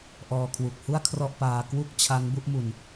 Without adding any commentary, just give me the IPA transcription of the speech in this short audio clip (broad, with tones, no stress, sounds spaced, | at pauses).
ʔ ɔː˧ kʰ w u˨˩ k̚ h u˥˩ a̯ kʰ r ɔ˥˩ ʔ p aː˧ k w u˥˩ k̚ t͡ɕʰ a˦˥ ŋ b u˦˥ ʔ m u˧ n